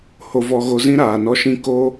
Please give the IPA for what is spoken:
h o˧ v ɔ˧ ɣ o˧ z ĩ˦ ɾ aː˨ n ɔ˦ ʃ ĩ˦ k o˦

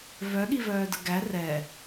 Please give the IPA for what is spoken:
v œ ɠ i v œː d ə ɡ æ r ɛ

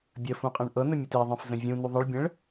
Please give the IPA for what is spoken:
bʲ ə f ũ qʼ ẽ ɳ ʔ ɤ n ə mʲ ɘ t e ðˤ ẽ f z ə̃ vʲ ũ n u ðˤ ə ɭ bʲ ə̃ ɭ

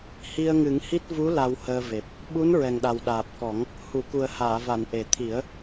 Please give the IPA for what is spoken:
h i˧ ə̯ ŋ ɨ˨˩˦ ŋ h i˦˥ t̚ v u˧˥ l a˧ w h əː˧ v e˨˩ p̚ | ɓ u˧˥ n ɹ ɛ˨˩ ŋ ɗ a˨˩ w ɗ aː˨˩ p̚ k ɔ˨˩˦ ŋ | h u˨˩˨ k u˨˩ ə̯ h aː˨˩˨ v a˨˩˨ n ʔ e˨˩ t̪ʰ i˨˩˦ ə̯

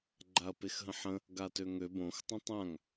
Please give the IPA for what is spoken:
ɡ͡ǃ a ɐ̯ p e x ɦ ə̃ ħ ə̃ | ɡ a t ø ŋ ø b õ x tˤ ə̃ tˤ ã ŋ

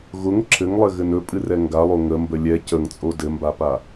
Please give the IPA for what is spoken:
ɣ ʊ ŋ ǁʰ ɘ ŋ lˠ ɘ ɣ ɘ n ɵ pʼ ɨ r ɛ ŋ ɡ a lˠ o ŋ ə m b ə lʲ ɛ c ə ŋ t͡sʼ o d ɘ m b a p a

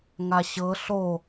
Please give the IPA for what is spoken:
ŋ a ɕ ɤ ɬ o

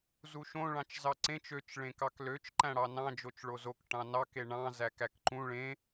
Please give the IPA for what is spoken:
z u ʃ õ ɭ ɑ̃ t͡ʃ z ɑ ǀ ẽ t͡ʃ ø t͡ʃ ɭ ẽ k ɑ k l ø t͡ʃ ǃ æ̃ ɽ ɑ n ɑ̃ d͡ʒ o t͡ʃ ɭ o z o k ʈ ɑ̃ n ɑ k e ɳ ɑ̃ z æ k æ k ǃ ũ ɭ ẽ

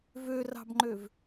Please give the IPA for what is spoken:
v ø r ɑ̤ b ŋ͡ǃ ø v

